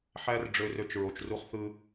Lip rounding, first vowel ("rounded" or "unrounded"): unrounded